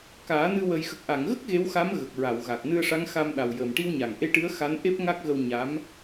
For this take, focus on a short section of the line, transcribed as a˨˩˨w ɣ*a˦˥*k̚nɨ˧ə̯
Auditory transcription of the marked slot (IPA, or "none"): a˨˩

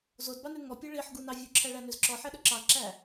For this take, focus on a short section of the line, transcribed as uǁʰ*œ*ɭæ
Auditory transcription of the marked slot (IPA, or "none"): æ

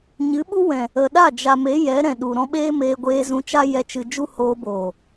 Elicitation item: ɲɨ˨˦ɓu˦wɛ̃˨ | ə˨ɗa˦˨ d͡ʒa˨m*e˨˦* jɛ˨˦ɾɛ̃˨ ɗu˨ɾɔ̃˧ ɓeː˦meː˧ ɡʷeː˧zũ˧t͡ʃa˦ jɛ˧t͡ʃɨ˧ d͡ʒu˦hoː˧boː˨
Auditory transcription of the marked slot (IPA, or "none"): e˨˦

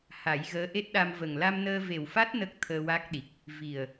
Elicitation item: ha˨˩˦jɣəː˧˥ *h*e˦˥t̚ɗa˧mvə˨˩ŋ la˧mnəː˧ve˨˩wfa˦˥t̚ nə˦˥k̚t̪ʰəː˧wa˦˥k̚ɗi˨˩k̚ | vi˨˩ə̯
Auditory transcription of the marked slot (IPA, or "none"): ʔ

